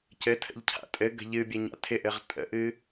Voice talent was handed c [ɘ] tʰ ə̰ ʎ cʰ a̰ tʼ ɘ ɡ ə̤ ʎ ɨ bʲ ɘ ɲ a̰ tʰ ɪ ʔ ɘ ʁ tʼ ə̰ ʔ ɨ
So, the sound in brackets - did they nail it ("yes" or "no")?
yes